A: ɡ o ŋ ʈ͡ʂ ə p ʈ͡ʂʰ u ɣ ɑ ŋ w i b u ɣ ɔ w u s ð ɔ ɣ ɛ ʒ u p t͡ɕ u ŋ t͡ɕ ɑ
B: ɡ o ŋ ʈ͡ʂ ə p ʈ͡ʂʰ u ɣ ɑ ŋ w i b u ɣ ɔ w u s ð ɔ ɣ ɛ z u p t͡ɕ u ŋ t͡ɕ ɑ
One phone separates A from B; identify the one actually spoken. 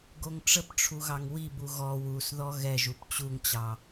A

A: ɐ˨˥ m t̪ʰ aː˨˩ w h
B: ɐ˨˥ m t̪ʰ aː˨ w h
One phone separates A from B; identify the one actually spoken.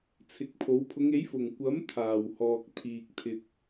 A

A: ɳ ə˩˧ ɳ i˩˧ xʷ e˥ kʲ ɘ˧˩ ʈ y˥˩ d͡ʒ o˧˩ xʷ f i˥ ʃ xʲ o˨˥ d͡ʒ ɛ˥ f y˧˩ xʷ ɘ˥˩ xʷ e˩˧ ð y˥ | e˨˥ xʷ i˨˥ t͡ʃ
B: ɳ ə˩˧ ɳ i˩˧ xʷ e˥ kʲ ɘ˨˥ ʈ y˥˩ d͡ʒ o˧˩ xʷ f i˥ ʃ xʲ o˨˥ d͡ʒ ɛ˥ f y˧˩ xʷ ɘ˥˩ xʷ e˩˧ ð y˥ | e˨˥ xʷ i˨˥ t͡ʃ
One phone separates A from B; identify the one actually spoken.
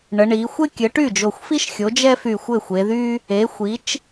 B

